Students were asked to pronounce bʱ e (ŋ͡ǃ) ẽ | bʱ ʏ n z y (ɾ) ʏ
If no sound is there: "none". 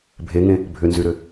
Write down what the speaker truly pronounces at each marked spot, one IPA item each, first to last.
ŋ, ɾ

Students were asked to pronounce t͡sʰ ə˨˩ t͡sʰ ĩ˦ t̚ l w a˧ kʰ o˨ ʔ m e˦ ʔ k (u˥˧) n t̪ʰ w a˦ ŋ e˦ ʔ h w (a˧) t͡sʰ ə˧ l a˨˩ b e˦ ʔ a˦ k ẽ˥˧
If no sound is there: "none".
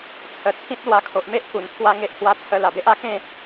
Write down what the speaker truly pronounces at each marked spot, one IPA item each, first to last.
u˨˩, a˧

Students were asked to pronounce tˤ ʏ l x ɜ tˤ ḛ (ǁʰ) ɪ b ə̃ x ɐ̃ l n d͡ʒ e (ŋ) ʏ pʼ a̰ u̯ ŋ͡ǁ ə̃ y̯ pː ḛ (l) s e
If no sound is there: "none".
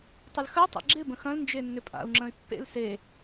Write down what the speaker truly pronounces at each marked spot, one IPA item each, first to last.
ɡ͡ǁ, nː, l

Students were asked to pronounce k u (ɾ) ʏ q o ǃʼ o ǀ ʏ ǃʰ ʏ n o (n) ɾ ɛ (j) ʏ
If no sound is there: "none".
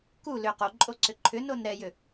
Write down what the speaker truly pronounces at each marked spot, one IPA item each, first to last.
l, n, j

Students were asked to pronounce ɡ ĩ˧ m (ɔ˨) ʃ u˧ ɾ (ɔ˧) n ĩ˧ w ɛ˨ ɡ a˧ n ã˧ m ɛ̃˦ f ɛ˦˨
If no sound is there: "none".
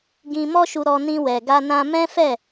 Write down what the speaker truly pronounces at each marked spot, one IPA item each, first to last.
ɔ˦, ɔ˧

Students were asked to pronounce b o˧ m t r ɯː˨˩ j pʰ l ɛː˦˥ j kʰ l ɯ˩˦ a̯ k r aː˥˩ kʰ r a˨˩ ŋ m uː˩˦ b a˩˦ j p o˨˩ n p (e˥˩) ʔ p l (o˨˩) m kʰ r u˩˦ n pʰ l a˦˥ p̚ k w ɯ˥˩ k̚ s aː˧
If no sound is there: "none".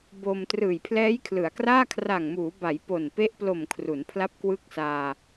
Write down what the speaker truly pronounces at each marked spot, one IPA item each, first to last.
e˦˥, o˨˩

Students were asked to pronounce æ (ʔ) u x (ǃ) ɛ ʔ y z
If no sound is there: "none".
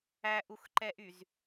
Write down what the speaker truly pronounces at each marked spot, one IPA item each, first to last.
ʔ, ǃ

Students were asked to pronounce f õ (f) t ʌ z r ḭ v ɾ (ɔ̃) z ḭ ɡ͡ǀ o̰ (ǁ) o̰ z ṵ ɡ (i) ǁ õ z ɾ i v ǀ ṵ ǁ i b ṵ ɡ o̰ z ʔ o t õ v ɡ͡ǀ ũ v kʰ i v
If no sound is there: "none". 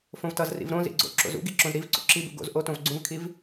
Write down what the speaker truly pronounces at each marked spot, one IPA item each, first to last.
v, õ, ǁ, i

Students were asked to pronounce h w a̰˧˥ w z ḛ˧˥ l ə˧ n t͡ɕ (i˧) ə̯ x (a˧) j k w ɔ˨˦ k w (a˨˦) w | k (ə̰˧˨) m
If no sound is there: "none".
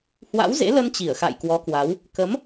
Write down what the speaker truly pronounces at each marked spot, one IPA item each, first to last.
i˧˩, a̰˧˨, a˨˦, ə˨˦

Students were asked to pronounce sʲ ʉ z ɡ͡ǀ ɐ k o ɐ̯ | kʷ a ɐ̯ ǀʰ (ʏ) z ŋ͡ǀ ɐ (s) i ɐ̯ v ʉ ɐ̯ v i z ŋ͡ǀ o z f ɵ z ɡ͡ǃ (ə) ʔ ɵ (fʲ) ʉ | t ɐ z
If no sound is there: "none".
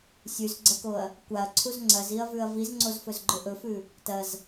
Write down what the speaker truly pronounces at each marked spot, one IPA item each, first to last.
u, z, ɵ, f

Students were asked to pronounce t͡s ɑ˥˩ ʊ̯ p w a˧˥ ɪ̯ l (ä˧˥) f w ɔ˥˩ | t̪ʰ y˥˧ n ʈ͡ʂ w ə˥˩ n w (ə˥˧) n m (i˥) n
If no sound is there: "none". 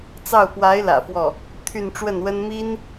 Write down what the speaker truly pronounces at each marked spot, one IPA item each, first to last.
ä̰˨˩, ə˥, i˥

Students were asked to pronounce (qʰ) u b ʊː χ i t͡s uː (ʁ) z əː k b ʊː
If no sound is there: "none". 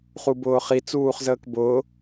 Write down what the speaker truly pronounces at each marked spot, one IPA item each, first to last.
χ, χ

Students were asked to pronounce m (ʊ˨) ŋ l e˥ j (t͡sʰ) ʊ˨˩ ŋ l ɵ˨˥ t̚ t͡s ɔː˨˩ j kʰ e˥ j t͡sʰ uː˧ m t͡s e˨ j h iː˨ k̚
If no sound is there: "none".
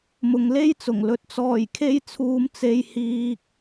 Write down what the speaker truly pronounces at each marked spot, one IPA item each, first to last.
ʊ˨, t͡s

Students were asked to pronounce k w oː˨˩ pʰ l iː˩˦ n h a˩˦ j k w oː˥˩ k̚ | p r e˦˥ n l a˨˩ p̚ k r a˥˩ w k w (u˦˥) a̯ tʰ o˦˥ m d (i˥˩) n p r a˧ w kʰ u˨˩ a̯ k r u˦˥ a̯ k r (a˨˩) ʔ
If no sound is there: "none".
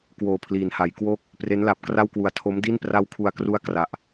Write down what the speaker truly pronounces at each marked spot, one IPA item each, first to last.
u˨˩, i˥˩, a˨˩

